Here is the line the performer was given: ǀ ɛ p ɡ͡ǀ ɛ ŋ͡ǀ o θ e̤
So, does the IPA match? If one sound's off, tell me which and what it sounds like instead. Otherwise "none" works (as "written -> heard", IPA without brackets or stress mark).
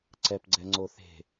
none